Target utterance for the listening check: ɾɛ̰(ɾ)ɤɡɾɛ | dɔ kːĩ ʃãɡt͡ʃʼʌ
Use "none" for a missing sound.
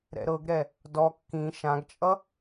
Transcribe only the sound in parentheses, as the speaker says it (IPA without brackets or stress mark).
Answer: ɾ